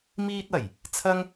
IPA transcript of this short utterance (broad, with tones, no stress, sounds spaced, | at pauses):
m iː˧ t̚ ɐ˨˩ j | t͡sʰ ɐ˥ ŋ